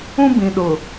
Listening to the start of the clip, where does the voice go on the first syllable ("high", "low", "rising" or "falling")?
high